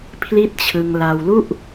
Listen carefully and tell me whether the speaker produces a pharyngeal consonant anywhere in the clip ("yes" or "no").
no